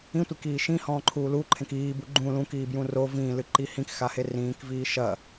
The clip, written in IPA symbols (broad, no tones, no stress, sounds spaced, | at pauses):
ĩ tʷ i k iː ʃ ĩ h ɔ̃ː ǃʰ uː l u ǃʰ ẽ k iː b u ɡ͡ǃ ũ l ũ k iː b j ũ r o v ĩː l ɨ ǃ i h ĩ k x a h e r ĩː k v iː ʃ ɐ